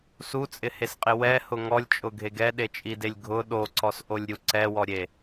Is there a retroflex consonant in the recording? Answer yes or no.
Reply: no